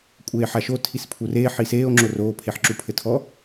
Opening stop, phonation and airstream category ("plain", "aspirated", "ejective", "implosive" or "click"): ejective